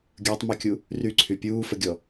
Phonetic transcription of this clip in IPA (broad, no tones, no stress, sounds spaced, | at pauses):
ɡʲ əː tˤ m y kʲ u | r y ǀʰ y pʲ uː f ə ɡʲ ɔ